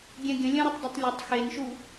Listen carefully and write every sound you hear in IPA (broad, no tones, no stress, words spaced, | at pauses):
ɡʲɛ̃ɡʲə̃ lʲə̃ɾətˤdˤetˤ lʲətˤ xenʃu